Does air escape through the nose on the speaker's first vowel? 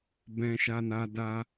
yes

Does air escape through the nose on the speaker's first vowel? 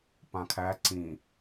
yes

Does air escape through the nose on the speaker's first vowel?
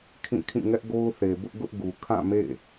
yes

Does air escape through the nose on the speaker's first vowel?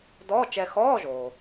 no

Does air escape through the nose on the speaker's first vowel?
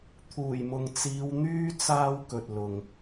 no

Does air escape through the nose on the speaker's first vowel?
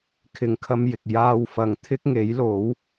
no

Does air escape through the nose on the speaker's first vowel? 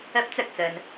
no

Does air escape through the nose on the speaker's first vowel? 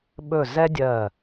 no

